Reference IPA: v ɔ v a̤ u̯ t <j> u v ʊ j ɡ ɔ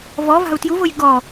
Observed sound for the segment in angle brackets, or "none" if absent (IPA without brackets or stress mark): j